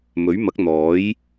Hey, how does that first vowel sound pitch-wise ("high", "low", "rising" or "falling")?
rising